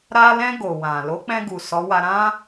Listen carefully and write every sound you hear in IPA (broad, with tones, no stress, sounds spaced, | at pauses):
ɾ a˧ l ɛ̃˧ ɡ o˨ w ã˨ l o˨˦ k͡p ɛ̃˧ ɡ u˨ s ɔ˨˦ w a˧ ɾ ã˦